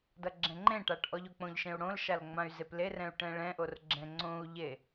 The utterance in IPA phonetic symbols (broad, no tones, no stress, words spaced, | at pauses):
dʌɡ͡ǁɛ̃ŋ͡ǃẽʈaʈ ʔɔʎok͡põʎʃẽu̯ ɽõlʃal ŋ͡mãy̯zeplerɛ̃u̯ ʈɛ̃ɭɛ̃ʔor ɡ͡ǁɛ̃ŋ͡ǀõu̯ʎe